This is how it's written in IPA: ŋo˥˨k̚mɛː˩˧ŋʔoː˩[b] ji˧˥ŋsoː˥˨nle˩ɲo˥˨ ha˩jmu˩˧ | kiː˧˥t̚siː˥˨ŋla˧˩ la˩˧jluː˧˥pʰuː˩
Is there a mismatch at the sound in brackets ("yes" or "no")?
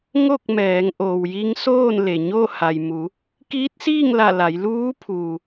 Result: yes